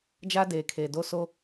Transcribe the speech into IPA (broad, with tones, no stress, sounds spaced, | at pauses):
d͡ʒ a˦ d eː˨ kʰ eː˨ d o˦˨ s o˦